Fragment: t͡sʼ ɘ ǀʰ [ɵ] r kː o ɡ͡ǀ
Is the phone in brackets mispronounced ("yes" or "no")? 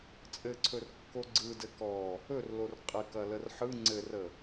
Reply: no